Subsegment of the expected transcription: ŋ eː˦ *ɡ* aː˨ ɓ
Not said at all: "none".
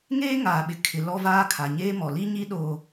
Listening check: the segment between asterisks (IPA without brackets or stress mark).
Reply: ŋ